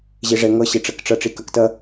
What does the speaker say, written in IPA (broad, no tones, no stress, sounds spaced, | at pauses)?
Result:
ʑ e ʐ ɛ ŋ ʌ ɕ e ʈ͡ʂ ɐ k ʈ͡ʂ ʌ ʈ͡ʂ i k ɐ k t ɐ